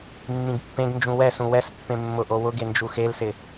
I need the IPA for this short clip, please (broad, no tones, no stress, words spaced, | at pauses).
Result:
mːĩɡpːẽɡnd͡ʒũ wɛsũ wɛspːẽ mːʊʔo wʊɡe nd͡ʒuxelsɪ